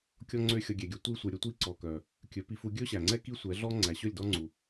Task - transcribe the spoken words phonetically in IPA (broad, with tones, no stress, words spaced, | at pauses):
kʲɔ˦ŋ͡ǀø˦ xʲɔ˧ɡʲɛ˨ɡʲɵ˧ tʷiː˧sʷœ˨ɾʲɵ˧tʷiː˧ ǀɔ˨kœ˨ | kʲɵ˨˦pi˧fu˧ ɡʲɵː˦ɕæ˨ŋ͡ǀɛ˦ ki˦ sʷɛ˨˦ɮɔ˦ ŋ͡ǀæ˨ɕɵ˦˨lʲ dɔ˦ŋ͡ǀu˨